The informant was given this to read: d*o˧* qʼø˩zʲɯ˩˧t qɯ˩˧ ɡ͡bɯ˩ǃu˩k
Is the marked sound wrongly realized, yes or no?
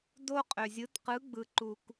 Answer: no